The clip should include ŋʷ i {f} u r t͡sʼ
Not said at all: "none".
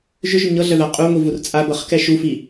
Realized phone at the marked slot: v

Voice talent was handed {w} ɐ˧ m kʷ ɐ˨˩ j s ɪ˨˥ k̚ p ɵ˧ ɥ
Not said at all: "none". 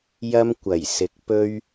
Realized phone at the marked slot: j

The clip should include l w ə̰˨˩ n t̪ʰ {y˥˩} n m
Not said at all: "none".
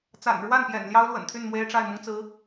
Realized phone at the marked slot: y˥˩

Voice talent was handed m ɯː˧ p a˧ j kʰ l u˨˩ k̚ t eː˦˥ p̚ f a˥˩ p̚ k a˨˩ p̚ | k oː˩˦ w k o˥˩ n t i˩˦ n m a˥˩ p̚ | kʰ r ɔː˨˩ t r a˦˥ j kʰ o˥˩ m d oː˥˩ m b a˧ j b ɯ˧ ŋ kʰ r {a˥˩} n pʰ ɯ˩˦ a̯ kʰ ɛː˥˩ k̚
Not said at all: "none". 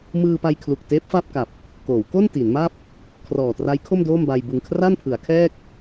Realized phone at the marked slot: a˥˩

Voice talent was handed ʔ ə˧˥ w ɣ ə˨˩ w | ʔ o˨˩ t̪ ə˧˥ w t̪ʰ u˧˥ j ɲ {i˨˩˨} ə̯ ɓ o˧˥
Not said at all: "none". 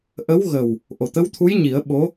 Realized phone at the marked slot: i˨˩˦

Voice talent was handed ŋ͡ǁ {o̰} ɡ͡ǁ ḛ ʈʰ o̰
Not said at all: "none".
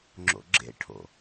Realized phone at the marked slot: o̰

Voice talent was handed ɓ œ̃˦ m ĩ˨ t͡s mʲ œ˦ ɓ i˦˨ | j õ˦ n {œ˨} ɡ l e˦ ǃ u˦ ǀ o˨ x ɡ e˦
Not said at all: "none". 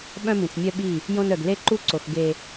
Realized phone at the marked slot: œ˨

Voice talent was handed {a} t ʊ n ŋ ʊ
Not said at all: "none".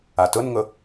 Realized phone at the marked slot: a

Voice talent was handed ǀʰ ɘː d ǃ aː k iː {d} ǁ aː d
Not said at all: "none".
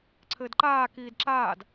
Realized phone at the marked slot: d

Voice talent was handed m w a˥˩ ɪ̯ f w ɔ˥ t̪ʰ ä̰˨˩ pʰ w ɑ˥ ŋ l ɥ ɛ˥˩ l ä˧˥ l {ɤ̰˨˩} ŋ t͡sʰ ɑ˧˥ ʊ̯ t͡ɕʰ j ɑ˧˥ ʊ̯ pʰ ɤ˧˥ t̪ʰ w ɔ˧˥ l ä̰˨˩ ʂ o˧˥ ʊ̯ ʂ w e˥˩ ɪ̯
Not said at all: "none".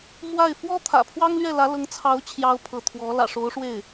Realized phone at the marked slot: ɤ˧˥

